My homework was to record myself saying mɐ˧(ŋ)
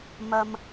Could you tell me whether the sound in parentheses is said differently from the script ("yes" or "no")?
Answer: yes